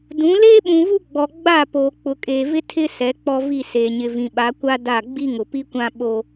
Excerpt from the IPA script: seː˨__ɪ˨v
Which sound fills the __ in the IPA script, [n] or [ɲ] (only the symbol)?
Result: ɲ